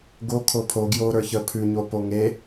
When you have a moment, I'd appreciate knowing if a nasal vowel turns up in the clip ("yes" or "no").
no